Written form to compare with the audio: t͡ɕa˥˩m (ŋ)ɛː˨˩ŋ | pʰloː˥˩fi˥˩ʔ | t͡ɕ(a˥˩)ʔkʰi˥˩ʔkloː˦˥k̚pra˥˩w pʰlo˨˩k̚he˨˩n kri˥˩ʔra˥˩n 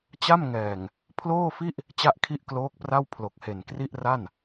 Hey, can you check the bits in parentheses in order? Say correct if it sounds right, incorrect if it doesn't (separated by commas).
correct, correct